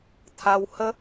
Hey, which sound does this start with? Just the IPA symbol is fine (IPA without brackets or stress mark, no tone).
t̪ʰ